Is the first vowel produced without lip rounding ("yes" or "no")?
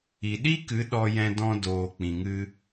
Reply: yes